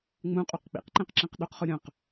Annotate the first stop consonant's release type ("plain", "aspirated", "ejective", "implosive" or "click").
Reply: ejective